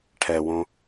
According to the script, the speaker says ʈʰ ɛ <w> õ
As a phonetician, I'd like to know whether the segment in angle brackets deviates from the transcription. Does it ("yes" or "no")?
no